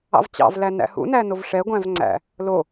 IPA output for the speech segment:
ɑ̰ v t͡ɕ ɑ̰ v l æ n æ̰ h ṵ n æ n o v ʂ ɛ ɡʷ æ̃ v ŋ͡ǀ æ̰ | l o

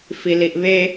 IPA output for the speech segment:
f i l i ʔ β e

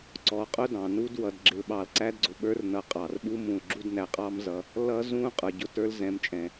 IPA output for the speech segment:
ǀ ɔ˨ qʼ ʊ˦ d ɑ̃˩ n u˦ d w ʌ˨ d ɡ͡ǁ ɪ˨ l ɓ ɑ˨ l ǀ æ˥ d ɡ͡ǀ ʊ˩ ɓ ə˞˦ r n ʌ˨ qʼ ɑ˩ r ɓ u˦ m ũ˩ l ɡ͡ǁ u˥ d n æ˩ qʼ ɑ˥ m z ʌ˨ | l ʌ˥ z ũ˥ qʼ ə˞˨ ɟ ʊ˦ t ə˞˦ l z ɛ̃˨ m t͡ʃʼ ɛ̃˩

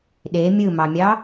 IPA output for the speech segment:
ɗ e mʲ ɯ m ɑ mʲ ɑ

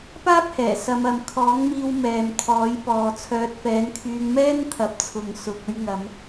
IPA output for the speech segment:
p aː˥ p̚ h ɛː˨˩ s ɐ˨˧ m ɐ˨ m kʰ ɔː˨˥ ŋ m iː˧ w m ɛː˨ m t̪ʰ ɔː˨˥ j p ɔː˨ t͡sʰ œː˨˥ t̚ f ɛː˨˥ n kʰ yː˧ ŋ m ɛː˥ n t̪ʰ ɐ˨ p̚ t͡sʰ ʊ˨ ŋ s ʊ˨ k̚ ɵ˧ ɥ ŋ ɐ˨˧ m

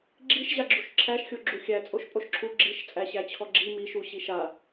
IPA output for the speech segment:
ɡ͡ǁ i ʃ ʑ a ɡ͡ǁ u ʃ ǁʰ æ ʃ xʲ o ɡ͡ǁ u xʲ æ t͡sʼ o ʃ pʼ o ʃ ǁʰ u ɡ͡ǁ i ʃ t͡sʼ æ ɕ æ t͡ɕʰ ɔ ɡ͡ǁ i m i ʃ u ɕ i ʃ a

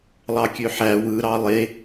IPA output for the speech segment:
lˠ ɑ kʲ ø ħ æ w ɯ ɾ ɑ lˠ e

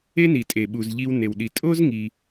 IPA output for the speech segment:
e˥ n i˩ tʼ e˩ ɓ u˩ z ʎ i˧ w n e˩ w ɗ i˩ tʼ o˥ z ŋ i˩

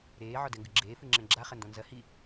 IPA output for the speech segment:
ɾ eː ʕ ɔ d ɛ ŋ ɡ ɨ ɡ͡ǁ eː f ɨ ŋ͡ǁ ɛ̃ ɡ͡ǁ a χ ɐ n d ɔ̃ n z ɐ h i

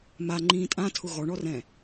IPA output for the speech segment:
m a ŋ͡ǃ ĩː tʼ ã tʰ ʊ ɣ ɔ ɳ ɔ r ɛ̃

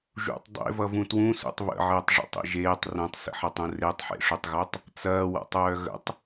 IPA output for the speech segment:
ʒ ṵ tˤ dˤ ḛ v ʌ v ũ t w ũ s ṵ tˤ β ə̰ ʕ əː tˤ ʐ ḛ tˤ ḛ ʒ eː tˤ r œ̃ tˤ s ə̰ ħ ʌ tˤ ũ r e tˤ ħ ḛ ʂ u tˤ ɣ œ tˤ | t͡s ɐː w a̰ tˤ œː ɣ ə̰ tˤ

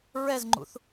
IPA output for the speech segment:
ɹ ɛ z ŋ͡ǃ ṵ θ

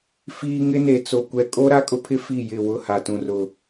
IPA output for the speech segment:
f iː˦ ŋ ɪ˦ n e˨ t͡s o˨ kʷ ɛ˨ kʼ o˦ ɾ a˦ kʼ ʊ˦ pʰ ɪ˦ f i˦˨ j ɪ˦˨ w ʊ˦˨ h a˨ t ũ˨ r ʊ˨

